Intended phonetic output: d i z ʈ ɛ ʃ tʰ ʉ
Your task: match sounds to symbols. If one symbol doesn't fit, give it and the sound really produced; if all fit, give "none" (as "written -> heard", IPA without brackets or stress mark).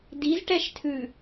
none